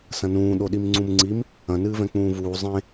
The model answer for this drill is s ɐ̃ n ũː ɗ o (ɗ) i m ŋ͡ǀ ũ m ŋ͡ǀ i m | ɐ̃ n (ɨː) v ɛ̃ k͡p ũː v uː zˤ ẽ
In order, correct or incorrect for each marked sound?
correct, correct

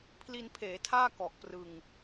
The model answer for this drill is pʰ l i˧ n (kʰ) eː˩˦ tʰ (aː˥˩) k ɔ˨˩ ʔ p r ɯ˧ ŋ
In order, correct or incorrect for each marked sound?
incorrect: pʰ, correct

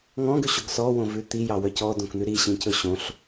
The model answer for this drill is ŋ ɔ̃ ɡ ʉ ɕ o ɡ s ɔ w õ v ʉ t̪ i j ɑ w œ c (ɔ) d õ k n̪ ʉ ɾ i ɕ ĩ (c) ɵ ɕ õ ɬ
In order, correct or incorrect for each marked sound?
correct, correct

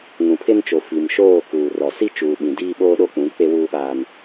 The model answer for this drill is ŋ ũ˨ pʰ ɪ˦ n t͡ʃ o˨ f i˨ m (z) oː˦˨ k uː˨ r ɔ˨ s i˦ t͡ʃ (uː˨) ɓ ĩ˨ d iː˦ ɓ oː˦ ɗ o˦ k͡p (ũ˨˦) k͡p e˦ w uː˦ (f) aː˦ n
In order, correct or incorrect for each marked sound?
incorrect: ʃ, correct, correct, incorrect: ɓ

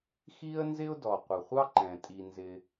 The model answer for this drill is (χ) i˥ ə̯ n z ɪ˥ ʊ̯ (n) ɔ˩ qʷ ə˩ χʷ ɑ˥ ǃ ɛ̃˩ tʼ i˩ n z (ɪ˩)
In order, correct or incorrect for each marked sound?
incorrect: x, incorrect: d, correct

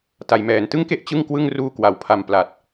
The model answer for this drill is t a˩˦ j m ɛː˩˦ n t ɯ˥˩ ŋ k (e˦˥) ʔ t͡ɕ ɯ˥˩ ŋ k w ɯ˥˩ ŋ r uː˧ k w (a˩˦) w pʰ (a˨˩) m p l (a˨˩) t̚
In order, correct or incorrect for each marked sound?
incorrect: e˥˩, correct, correct, correct

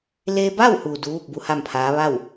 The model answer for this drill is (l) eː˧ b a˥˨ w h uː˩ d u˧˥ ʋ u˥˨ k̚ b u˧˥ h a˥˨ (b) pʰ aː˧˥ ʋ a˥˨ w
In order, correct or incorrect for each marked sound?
correct, incorrect: m

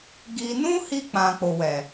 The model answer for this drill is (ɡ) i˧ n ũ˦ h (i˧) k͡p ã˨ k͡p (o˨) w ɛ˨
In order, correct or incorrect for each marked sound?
correct, correct, correct

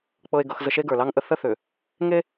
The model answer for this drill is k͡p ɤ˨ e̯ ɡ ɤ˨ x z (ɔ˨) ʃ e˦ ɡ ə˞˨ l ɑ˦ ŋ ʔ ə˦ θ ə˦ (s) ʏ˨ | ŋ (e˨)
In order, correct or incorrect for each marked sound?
incorrect: ə˨, incorrect: θ, incorrect: e˦

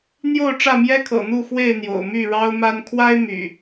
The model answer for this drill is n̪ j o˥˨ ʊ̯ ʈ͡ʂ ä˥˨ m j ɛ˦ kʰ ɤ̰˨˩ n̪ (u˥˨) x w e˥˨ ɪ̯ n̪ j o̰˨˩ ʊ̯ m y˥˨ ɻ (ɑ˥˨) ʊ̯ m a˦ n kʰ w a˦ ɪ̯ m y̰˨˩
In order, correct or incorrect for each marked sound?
correct, incorrect: ɑ˦

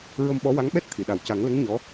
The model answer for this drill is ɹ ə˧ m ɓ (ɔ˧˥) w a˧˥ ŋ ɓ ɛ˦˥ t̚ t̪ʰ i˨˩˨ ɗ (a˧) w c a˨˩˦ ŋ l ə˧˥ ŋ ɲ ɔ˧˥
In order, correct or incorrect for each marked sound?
correct, incorrect: a˨˩

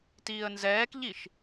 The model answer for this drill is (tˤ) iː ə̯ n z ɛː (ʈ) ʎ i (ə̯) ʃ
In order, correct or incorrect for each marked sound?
incorrect: t, incorrect: k, incorrect: none

